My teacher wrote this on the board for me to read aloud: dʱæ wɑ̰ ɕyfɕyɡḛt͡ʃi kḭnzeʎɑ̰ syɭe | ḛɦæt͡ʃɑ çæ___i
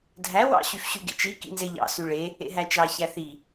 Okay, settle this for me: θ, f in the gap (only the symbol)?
θ